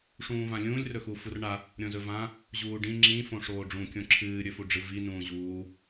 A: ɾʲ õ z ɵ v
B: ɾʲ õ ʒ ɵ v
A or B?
A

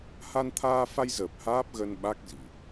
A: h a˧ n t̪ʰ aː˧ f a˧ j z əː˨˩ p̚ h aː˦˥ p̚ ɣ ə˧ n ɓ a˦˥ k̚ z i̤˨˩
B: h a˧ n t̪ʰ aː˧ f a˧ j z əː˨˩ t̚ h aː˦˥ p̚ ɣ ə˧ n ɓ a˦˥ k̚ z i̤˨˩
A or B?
A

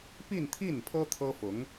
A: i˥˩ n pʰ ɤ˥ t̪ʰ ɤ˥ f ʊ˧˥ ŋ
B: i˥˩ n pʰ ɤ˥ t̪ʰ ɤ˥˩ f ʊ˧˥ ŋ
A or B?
A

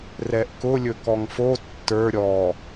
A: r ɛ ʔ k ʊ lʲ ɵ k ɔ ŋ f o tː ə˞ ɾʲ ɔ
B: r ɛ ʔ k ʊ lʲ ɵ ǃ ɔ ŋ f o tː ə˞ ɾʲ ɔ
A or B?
A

